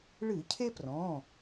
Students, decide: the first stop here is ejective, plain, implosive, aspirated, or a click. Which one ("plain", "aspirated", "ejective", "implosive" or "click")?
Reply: aspirated